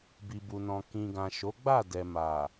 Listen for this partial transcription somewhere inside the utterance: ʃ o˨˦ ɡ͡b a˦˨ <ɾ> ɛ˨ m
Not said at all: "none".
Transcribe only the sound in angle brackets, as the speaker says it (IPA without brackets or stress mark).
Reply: d